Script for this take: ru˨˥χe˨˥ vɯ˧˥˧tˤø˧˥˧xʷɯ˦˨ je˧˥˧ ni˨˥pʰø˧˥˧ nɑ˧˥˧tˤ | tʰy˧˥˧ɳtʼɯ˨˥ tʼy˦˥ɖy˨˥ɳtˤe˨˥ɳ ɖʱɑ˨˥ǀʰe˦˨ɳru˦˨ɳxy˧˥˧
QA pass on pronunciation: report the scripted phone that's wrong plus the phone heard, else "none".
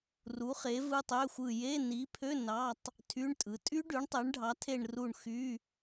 ǀʰ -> tʰ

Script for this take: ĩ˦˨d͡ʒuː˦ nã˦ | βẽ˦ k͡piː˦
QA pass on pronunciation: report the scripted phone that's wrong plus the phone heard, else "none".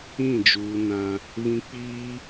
ẽ˦ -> ĩ˦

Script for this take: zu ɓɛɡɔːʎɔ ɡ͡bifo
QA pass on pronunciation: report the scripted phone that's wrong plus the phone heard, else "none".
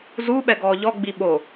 f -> ɓ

